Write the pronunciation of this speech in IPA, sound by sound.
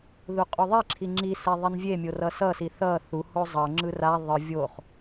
ð u qʼ u ðˤ i ǁʰ i ŋ͡ǁ i s e ðˤ i n vʲ e mʲ o r ʌ s ʌ s i θ ʌ θ u h o zˤ ʌ ŋ͡ǁ ɯ r a ðˤ ɯ vʲ o χ

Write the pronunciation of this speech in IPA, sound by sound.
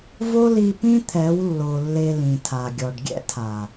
v o˦ l i˧ p ĩ˦ t̪ʰ ɛ˨˦ w lː o˨ lː e˧ l ĩ˨ tʰ a˨ ɡʲ ɔ˨ ɖ ɡʲ ɛ̰˦ tʰ a˨

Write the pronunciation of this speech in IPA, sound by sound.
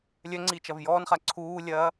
lʲ œ ŋ͡ǀ iː t͡ʃ ɐ v j ɔː n χ a ǀʰ uː lʲ ɐː

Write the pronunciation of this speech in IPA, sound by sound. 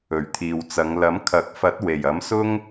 ɵ˨˩ ɥ t̪ʰ iː˨ w t͡s ɐ˨˧ ŋ l ɐ˨˥ m kʰ ɐ˨˥ k̚ f ɐ˨˥ t̚ w e˨˩ j ɐ˨˥ m s ʊ˥ ŋ

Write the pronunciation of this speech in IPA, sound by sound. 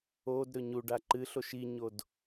o d ɾ ɵ ɲ u ɖ a ǃ ɨ ɬ o ʃ i ɲ o d

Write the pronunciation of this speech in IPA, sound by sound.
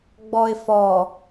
ɡ͡b ɔ ɪ̯ f ɔ

